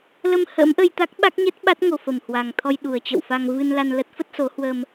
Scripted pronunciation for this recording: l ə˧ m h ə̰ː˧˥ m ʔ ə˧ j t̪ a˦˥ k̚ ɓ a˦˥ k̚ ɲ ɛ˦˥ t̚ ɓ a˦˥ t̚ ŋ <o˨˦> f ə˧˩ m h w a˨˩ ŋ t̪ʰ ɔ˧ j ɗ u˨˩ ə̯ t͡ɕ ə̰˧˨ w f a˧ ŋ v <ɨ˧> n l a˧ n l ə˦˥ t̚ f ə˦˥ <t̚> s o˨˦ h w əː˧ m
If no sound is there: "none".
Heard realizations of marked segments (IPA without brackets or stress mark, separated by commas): o˨˩, ɨ˧, t̚